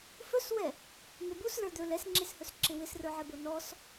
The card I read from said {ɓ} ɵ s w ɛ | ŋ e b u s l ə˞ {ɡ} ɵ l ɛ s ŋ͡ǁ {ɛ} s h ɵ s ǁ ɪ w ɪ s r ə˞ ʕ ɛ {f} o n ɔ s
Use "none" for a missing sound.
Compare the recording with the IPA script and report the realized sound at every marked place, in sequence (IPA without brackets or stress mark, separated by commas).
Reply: f, d̪, e, b